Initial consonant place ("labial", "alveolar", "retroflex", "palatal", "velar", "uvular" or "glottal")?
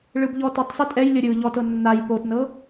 retroflex